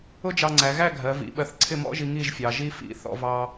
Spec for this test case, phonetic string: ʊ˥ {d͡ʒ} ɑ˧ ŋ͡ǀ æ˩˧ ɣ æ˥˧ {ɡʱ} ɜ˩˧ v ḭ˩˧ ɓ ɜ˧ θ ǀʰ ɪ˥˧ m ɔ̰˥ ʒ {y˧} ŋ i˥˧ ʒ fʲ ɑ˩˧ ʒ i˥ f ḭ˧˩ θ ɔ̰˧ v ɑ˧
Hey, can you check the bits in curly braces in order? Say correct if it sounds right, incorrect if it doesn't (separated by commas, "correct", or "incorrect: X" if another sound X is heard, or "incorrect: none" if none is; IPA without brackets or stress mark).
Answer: correct, correct, incorrect: i˧